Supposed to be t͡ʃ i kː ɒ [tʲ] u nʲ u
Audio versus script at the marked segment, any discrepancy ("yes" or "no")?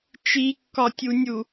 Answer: no